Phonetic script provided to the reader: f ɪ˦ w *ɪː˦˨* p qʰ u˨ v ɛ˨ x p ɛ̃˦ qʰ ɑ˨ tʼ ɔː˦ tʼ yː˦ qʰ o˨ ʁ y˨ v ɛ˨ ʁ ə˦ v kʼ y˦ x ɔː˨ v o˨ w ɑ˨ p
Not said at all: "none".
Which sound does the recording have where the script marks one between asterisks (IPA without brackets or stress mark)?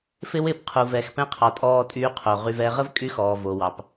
ɪː˦˨